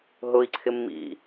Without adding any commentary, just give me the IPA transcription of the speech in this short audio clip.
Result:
ɦ ʊ i̯ ǀʰ ɪ mː ḭ

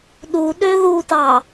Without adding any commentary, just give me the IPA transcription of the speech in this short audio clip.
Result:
ɗ u ɗ ø ð u t ɑ

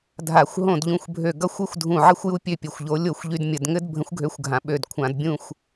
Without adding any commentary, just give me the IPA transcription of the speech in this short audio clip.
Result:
dʱ a˧˩˧ xʷ ɦ õ˥˨ d ʎ ũ˥˨ xʷ bʱ ø˥˨ ɡ ʌ˦ xʷ ɘ˦ xʷ dʱ ũ˧˩ ʕ ɘ˥˨ xʷ j u˦ pʲ ø˥˨ pʲ ɘ˧˩ xʷ ʎ o˨˥ lʲ o˥˨ xʷ ʎ y˦ d mʲ ə˧˩˧ d ŋ ɘ˦ d bʱ ə̃˨˥ xʷ ɡʱ ø˨˥ xʷ ɡʱ ã˩˧ ɓ ø˧˩ d kʷʰ ã˧˩˧ d bʲ ũ˥˨ xʷ

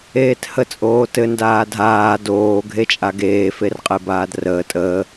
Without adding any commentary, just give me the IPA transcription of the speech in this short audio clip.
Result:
eː t h ə t͡sʼ oː t ɘ n d aː dʱ aː d oː ɡʱ e t͡ʃʼ a ɡ eː f e r qʼ e b aː d r əː tʼ əː

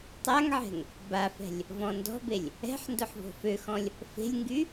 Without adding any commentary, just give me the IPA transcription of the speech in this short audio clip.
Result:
tˤ a ŋ ʕ ɛ̤ ŋ | b a f ɛ̤ lʲ | v ɔ̃ n d ɔ̤ b e lʲ | ɛ̤ ħ n d ʊ ħ v o̤ f ø x ɔ̃ lʲ | f e̤ lʲ ŋ ɡ y

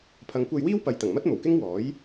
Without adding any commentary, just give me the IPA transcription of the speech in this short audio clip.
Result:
pʰ ɐ˨˧ ŋ kʷ ɐ˧ j w iː˥ w p ɐ˨˧ j t̪ ɐ˨˩ ŋ m ɐ˥ t̚ m o˨˩ w k ɪ˥ ŋ w ɔː˨˥ j

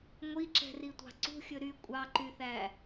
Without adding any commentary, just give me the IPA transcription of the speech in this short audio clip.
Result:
ŋʷ i ǁ ɛ̤ r i tʷ ɑ̤ ǀ ṳ xʲ ɵ ɾ y kʷʼ ɑ ǃ y θ æ

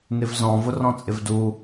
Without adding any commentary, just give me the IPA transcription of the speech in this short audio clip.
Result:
n ɪ v z ɔ̃ v ʊ r ɔ̃ t͡sʼ ɪ v d u

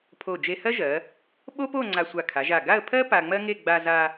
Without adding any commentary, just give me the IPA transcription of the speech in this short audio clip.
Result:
pʰ o˧˩ d͡ʒ e˧ h ɜ˥ ʒ ɜ˩˧ | ɓ o˥ p o˥˧ ŋ͡ǀ a˧ sʷ a˧˩ kʰ a˩˧ ʒ a˧˩ ɡ a˥˧ ə̯ pʰ ɜ˥ p a˧ ŋ͡m ɜ˥ ŋ e˥˧ ɡ͡b a˧ z a˧

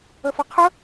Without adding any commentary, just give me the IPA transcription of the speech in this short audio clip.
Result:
ə f ʌ qʰ ə

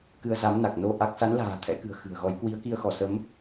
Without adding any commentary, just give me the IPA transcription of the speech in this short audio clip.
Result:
k ɨ˧ ə̯ z a˨˦ m n a˨˩ k̚ n o˧ ʔ a˦˥ k̚ s a˨˦ n l a̤ː˨˩ t̪ʰ ɛ̰˧˥ k ɨ̤˨˩ ə̯ x ɨ̤˨˩ ə̯ ɣ ɔ˨˦ j k w i˨˦ ə̯ k i˧ ə̯ x ɔ˧˩ s ə˨˦ m

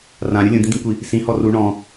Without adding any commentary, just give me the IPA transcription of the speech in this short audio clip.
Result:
r ã ɾʲ u lʲ ũ d̪ ĩ d̪ ĩ kʷ i | s ĩ h ɔ r u ɳ ɔ̃

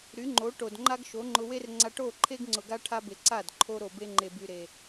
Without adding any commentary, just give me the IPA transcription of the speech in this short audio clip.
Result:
ɾ y˨˦ ŋ͡ǃ o˨˦ ʈ o˨ d ŋ͡ǃ a˦ ɡ ʃ o˨˦ ŋ͡ǃ ʊ˧ w e˦ r ŋ͡ǀ a˧ ʈ o˦˨ ǃʰ e˦ ɡ ŋ͡ǀ ʊ˨ ɡ a˧ ʈʰ a˧ b e˨ ǀ a˦˨ d ǃʰ o˧ ɾ o˨ b e˧ ŋ͡ǃ e˨ b y˨ ɾ e˨

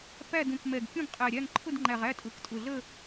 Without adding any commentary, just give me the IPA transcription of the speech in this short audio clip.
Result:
p æ˦˨ d ũ˨˩ k m ɛ˨˩ ɡ kʲ ũ˦˨ ɡ qʼ æ˨˩ ɾʲ æ˦˨ ŋ ǃʰ ʊ˦˨ d ŋ͡ǃ æ˨˩ ʁ æ˦˨ tʼ ʊ˨˩ k tʼ ʊ˨˩ ɮ ə˦˨

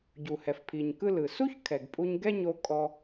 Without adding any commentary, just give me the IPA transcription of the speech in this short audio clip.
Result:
ɟ u˩ h ɛ˩ f pʰ i˩ ɲ k ɯ˧ l ɯ˩ s u˥ ç kʰ ɛ˩ ɡ pʼ u˧ ɲ ɡ ɛ˥ ɲ o˧ kʼ ɔ˧

